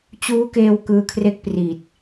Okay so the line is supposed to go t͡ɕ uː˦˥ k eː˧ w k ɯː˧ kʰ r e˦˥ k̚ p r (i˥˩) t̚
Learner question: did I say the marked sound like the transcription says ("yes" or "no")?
no